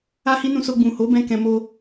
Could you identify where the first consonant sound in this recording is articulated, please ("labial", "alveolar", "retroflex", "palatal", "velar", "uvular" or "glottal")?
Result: glottal